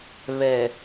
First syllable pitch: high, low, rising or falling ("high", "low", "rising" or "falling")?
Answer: low